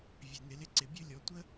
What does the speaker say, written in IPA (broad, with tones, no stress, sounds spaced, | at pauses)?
vʲ ɛ˩ n ɪ˩˧ l ɪ˧˥ ǀ ɪ˩ bʲ ɵ˥ lʲ ɔ˩˧ tʷ ə˥